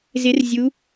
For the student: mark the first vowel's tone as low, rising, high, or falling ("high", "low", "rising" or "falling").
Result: rising